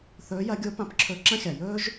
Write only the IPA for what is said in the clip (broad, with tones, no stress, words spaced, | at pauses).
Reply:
θɵː˧˥jɐ˧˥ ɡʲo˧˥pã˧pǁʰɵ˧ ǁɐ̃˥xʲa˩ jɵː˥ʒ